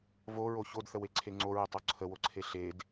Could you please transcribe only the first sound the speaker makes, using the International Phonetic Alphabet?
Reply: v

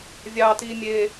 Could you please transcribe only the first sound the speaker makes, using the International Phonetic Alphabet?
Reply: vʲ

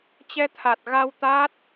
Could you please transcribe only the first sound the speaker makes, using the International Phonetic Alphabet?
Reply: t͡ɕ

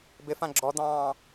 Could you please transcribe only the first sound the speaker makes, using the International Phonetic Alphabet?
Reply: b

